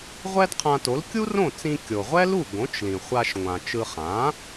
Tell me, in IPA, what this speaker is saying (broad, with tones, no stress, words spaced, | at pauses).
ʁʷɛ˥dqʰã˧to˩˥l kʲu˥rõ˥˩t͡sĩ˧ kʲo˩ʁʷɛ˥lu˥˩ ɡõ˩˥t͡ʃlĩ˩χʷa˧ʃ ŋʷã˩t͡ʃɯ˧ χã˩˥